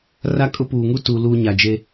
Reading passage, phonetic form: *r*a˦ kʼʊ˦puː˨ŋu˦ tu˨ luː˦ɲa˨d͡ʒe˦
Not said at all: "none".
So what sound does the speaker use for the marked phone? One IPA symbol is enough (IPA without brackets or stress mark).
r